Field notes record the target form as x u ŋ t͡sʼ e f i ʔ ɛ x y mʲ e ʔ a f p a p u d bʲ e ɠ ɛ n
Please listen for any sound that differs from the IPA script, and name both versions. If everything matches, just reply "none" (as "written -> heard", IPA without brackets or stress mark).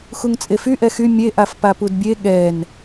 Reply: i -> y